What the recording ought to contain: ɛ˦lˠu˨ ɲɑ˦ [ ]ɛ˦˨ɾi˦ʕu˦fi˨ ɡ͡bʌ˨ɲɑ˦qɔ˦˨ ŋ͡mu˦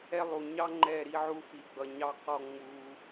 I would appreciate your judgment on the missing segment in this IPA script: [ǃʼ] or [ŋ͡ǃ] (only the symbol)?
ŋ͡ǃ